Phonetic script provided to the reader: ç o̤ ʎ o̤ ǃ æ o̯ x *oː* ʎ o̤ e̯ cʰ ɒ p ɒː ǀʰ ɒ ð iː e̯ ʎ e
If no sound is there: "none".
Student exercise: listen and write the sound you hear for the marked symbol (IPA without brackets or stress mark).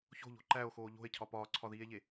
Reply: oː